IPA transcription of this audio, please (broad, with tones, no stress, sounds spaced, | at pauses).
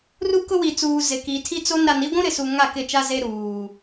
r u˦ k ʊ˦ w i˨ t͡s uː˨ z ɪ˨ k i˨ tʰ i˦ t͡s o˦ n ɾ a˨ n i˦ ɡʷ ũ˦ ɾ ɪ˨ s u˨ ŋ a˦˨ k ɪ˦˨ t͡ʃ a˦ z e˦ ɾ uː˨